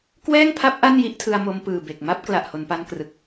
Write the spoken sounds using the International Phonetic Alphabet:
kwɛː˥˩ŋpʰa˦˥p̚ ʔa˥˩nji˦˥ʔtʰɯ˧a̯ mo˧mpɯː˨˩ be˨˩k̚ma˥˩p̚ kla˨˩ʔho˩˦npa˧nkrɯ˨˩k̚

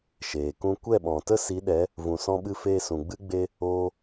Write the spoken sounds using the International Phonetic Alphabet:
ʃeː˨kũ˦ kʷɛ˦˨ɓɔ̃˨tə˦ si˨˦ɗɛ˨˦ | vũ˨sɔ̃˧ɓɨ˧ feː˧sũ˨ɡ͡bɨ˦ɡ͡be˦ | oː˦

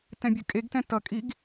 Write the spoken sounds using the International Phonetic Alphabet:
tɛ̃bʲɯkʼeɡtɛ̃ tʌkʼiɡ

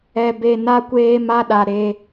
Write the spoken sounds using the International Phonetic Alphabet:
ɛ˧ be˧ na˦kʷeː˦ ma˦ɗa˧ ɾe˧

